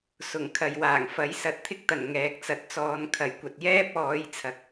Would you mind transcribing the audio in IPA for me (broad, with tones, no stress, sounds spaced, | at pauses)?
s ʊ˨˩ ŋ kʰ ɐ˨ j w aː˨˩ ŋ f ɐ˨˥ j s ɐ˨˥ t̚ t̪ʰ ɪ˥ k̚ t̪ ɐ˨˩ n ŋ ɛː˨ k̚ t͡s ɐ˨ t̚ t͡s ɔː˨˧ n kʰ ɐ˨˩ j kʷ ɐ˨ t̚ j ɛː˥ p̚ ɔː˨˧ j t͡sʰ ɐ˨˥ k̚